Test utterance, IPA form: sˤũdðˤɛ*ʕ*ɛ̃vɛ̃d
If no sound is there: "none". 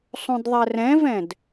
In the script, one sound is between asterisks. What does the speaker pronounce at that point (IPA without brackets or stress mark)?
r